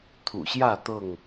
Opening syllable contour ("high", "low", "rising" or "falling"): low